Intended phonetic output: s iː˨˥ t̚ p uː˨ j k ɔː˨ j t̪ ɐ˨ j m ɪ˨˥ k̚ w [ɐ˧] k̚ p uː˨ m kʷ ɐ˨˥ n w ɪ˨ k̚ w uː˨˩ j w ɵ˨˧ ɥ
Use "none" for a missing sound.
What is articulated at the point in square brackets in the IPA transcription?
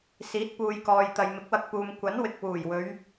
ɐ˧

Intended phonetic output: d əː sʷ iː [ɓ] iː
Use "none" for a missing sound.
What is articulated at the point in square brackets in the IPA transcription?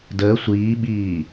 ɓ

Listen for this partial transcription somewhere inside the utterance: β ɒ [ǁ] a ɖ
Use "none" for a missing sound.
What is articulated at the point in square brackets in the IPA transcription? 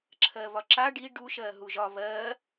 ǁ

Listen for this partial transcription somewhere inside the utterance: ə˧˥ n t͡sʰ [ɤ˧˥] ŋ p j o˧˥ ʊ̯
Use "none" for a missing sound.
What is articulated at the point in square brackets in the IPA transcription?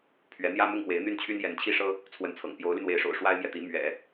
ɤ̰˨˩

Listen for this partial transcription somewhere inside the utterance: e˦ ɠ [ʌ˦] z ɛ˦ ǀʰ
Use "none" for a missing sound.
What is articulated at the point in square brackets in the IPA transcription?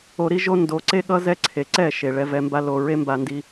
ʌ˦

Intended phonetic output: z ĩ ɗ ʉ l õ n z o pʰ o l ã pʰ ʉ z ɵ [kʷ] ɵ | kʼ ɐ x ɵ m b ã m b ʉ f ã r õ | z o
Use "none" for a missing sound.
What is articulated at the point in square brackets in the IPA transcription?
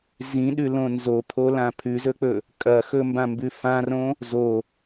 k͡p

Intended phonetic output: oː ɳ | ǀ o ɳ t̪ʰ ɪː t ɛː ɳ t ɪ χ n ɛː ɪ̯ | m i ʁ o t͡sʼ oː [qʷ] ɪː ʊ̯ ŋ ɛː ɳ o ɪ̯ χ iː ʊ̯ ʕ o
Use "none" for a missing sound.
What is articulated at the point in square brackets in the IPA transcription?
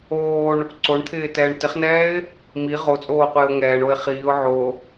qʷ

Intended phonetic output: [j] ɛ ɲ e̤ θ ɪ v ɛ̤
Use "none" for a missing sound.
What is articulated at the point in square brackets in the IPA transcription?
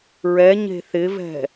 ɹ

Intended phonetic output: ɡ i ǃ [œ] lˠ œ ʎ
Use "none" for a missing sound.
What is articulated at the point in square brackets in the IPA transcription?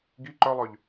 œ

